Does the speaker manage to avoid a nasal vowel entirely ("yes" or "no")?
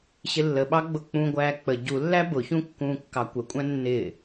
no